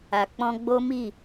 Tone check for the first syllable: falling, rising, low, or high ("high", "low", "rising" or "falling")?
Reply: low